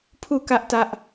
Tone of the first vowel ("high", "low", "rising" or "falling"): falling